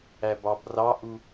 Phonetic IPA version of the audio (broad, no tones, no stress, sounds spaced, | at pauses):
æ b ɑ b r ɑ ʔ u